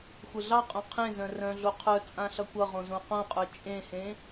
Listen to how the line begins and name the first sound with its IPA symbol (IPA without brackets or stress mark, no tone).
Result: xʷ